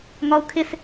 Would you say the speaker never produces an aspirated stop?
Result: no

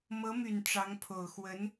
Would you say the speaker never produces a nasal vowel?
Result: yes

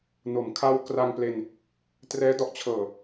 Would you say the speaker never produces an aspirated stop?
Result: no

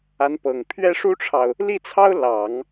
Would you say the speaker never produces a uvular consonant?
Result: yes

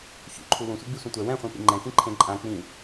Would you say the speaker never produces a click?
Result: no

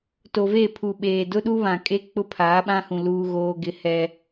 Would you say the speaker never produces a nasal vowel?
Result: no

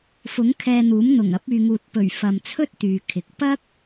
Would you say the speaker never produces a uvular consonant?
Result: yes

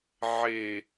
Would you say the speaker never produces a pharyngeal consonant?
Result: no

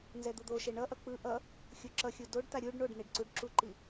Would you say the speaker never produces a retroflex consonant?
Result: no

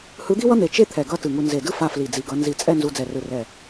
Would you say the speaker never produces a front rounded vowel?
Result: yes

